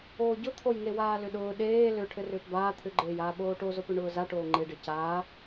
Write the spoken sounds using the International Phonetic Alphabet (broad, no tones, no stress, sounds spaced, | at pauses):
oː ɟ ʊ t̪ʰ o j ŋ e w aː l ʏ ɗ ʊː ɗ eː l ʏ ʈʰ ɘ r ʏː p b aː t̪ʰ ʏ ɡ͡ǃ eː j aː ɓ oː ʈ o z o p ʏ ɳ ʊː z a ʈ oː ŋ͡ǃ e ɖ e c aː